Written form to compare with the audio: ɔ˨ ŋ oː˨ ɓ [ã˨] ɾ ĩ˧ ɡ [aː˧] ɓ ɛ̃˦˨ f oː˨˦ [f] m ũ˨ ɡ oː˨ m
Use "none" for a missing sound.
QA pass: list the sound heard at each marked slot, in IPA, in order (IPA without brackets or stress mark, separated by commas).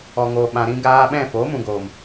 ã˨, aː˧, none